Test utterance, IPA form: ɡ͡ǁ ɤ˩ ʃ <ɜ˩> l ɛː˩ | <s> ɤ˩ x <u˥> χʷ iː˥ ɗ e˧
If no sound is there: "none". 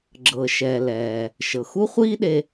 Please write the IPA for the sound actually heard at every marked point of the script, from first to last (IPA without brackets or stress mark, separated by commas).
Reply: ɛ˩, ʃ, u˥